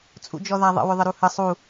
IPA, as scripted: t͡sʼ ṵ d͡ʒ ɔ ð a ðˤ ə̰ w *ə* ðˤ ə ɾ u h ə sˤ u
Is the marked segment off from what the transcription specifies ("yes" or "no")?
yes